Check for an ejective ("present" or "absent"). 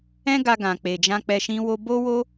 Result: absent